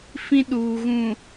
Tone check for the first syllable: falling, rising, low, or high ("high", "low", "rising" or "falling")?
high